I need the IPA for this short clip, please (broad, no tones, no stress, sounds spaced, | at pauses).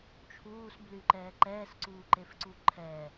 t͡ʃʰ uː s b l y ǃ ɛː ǃ ɛː s ǀ uː ǃ e f ǀ u ǃʰ ɛ